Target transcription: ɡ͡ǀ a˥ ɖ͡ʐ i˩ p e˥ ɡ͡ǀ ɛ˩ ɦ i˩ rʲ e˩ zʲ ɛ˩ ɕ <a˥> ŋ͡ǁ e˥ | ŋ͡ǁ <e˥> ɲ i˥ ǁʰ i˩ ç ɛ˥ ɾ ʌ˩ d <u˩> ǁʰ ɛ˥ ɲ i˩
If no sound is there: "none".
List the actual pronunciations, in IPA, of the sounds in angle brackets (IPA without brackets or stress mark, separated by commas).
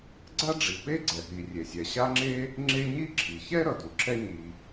a˥, e˥, u˩